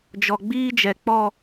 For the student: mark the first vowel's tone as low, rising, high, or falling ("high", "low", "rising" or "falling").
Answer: low